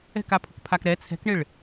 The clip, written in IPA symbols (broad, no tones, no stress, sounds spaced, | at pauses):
ɛ̤ k a pʰ ʊ k pʰ a k ɾ ɛ t͡sʰ ɛ̤ k ɳ ɪ ɭ